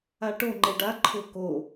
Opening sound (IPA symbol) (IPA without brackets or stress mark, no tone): a